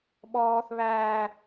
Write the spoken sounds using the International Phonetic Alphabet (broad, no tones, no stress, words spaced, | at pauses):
ɓɔːθ βæː